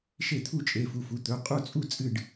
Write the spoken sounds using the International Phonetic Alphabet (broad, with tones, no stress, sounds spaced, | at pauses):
ʃ e˥˩ t̪ʰ u˥˩ t͡ʃʼ e˩˧˩ f u˩˧˩ f u˩˧˩ t̪ ɵ˩˧˩ qʼ u˥˩ t͡sʼ u˥˩ t͡sʼ ɨ˥˩ ɖ